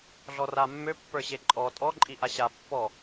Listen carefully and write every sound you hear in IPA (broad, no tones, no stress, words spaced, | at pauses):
ɮɔramːø pːə˞ɕeǃʼɔ tʼɔ ǃʼiʔaɕa pːɔ